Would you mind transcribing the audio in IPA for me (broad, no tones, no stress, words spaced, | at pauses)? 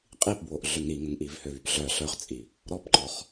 qʼipbwoʔ ɮøŋɾiŋəŋ ʔivhøvypɮœ ɬœχt͡sʼi | ɾɔpǃɔχ